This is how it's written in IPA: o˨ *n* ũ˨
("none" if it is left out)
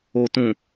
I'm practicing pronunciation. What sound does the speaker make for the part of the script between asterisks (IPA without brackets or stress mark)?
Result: t